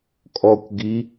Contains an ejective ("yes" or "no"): yes